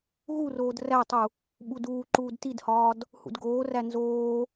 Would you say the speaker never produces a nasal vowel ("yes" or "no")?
yes